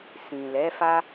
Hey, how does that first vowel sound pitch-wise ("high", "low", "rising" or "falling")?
low